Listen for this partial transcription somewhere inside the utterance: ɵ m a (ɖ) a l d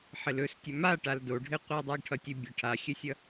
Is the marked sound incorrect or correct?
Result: incorrect